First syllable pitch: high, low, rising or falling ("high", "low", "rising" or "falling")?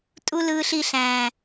high